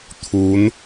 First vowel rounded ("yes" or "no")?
yes